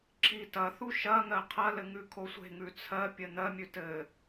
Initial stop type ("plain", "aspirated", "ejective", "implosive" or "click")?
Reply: click